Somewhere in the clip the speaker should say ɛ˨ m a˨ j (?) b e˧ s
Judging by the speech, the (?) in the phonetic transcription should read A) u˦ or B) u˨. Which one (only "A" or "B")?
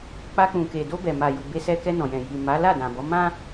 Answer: B